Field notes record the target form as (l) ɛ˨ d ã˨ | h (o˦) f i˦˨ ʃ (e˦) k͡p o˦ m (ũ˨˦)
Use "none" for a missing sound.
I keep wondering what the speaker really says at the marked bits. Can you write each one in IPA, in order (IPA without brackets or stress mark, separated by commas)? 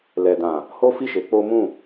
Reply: l, o˦, e˨˦, ũ˦˨